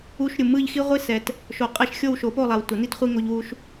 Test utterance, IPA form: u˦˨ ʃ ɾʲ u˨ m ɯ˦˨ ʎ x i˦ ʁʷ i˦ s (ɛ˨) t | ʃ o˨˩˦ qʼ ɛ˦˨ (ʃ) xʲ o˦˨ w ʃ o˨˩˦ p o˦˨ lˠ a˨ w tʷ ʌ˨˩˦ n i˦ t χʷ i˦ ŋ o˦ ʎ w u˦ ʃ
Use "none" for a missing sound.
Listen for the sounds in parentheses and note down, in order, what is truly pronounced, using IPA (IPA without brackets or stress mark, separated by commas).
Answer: ɛ˨, ʃ